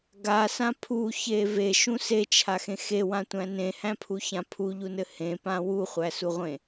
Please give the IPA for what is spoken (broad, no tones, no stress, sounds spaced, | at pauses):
ɡ a s ã pʰ u ç e v e ʃ ũ s e t͡ʃʰ a x ẽ x e w ã tʷ æ̃ n ẽ h æ̃ pʰ u ç ã pʰ u ʎ u n ɘ h ẽ p ã w u χʷ æ s u ʁʷ ẽ